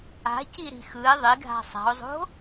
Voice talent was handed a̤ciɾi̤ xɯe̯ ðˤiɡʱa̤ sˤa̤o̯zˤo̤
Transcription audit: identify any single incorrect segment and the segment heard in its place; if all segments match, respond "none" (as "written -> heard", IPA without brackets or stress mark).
none